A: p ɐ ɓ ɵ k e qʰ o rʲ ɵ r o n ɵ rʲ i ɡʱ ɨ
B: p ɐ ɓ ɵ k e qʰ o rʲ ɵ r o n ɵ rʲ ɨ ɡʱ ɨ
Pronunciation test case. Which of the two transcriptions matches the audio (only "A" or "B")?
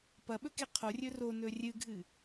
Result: B